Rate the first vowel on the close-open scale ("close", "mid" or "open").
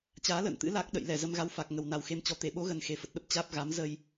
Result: open